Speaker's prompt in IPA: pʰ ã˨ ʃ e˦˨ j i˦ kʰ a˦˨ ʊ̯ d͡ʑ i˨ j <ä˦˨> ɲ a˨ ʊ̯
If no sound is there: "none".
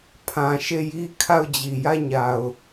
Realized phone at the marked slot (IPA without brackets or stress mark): ä˦˨